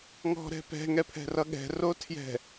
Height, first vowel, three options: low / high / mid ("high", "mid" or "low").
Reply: mid